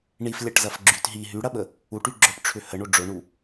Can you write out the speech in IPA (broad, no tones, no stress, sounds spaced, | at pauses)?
ɳ i f lʲ ɐ ʈ z ɐ f ɡ͡ǁ y t ɦ i ɦ y ɽ ɐ ɓ ə | u ʈ y ɡ͡ǁ œ ʈ ʈ͡ʂʰ ʏ h ə ɳ o ɖ͡ʐ ʊ ɳ u